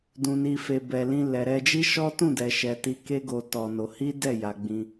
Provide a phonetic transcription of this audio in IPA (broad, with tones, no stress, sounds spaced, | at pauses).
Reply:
d ũ˨ n i˨ f e˨ b ɛ˨ l ĩ˧ l ɛ˨ ɾ ɛ˧ d͡ʒ i˦ ʃ ɔ˦ t ũ˦˨ d ɛ˨ ʃ ɛ˨ t i˧ k e˦ ɡ o˧ t ɔ˧ n o˧ h i˦ d ɛ˦˨ j a˧ ɡ͡b ĩ˧